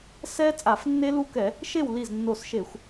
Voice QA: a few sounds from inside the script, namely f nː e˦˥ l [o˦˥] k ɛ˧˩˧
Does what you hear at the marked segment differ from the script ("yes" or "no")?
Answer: yes